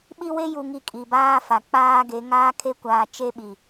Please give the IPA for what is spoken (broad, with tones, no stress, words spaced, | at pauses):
ɓi˦we˦ ju˨ŋi˨ kʼi˨baː˦fa˨ k͡paː˦ɡe˨˦ ŋaː˦kʰe˦kʷaː˨ t͡ʃe˦ɓi˨